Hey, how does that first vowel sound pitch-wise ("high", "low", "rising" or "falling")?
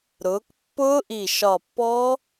rising